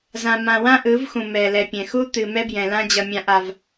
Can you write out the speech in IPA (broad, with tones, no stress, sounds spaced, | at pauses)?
z ã˨ m ã˨ w ã˦ ʔ ɯ˨˦ v x ũ˨ m ɛ˨ l ɛ˨ pʲ ɛ̃˨ x u˦ t̪ ɨ˨ m ɛ˦ b j ɛ̃˨ l ã˦ d͡ʑ ʌ˨ mʲ ã˨ ʔ a˨ v